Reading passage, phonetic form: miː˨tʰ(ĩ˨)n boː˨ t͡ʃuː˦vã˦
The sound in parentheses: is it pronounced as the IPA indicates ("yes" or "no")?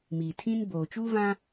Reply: no